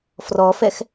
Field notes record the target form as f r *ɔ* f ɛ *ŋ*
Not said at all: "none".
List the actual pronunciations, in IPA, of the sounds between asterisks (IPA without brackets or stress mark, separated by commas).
ɔ, x